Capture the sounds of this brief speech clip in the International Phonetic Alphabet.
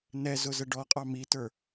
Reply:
n ɛ z ʊ z ə ɖ ɔ qʼ ɑ m i t ə˞

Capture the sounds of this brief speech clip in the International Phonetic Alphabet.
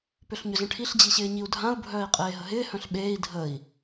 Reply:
p ʏ ɬ ɲ ʏ z ə̃ ʈʰ i ɬ d͡ʑ i ɕ ɪː ɲ i u̯ dʱ ã u̯ bʱ œː i̯ qʼ eː ɦ ə ɦ ɪː h œ̃ ɬ ɓ eː i̯ dʱ ə i̯

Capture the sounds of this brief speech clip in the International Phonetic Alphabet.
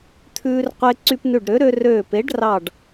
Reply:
t̪ʰ ʉː˧ r qʷ e˧ ǀ y˧ p n ʉ˧˩ ɖ ɾ ø˩˥ ɾ ø˧ r øː˧˩ p e˩˥ ɖ r ɑ˧˩ ɖ

